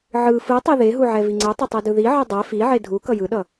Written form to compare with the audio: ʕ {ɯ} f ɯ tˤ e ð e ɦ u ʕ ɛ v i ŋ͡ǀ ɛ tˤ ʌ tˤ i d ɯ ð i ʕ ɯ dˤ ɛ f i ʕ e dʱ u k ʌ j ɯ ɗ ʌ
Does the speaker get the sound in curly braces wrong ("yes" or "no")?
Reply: no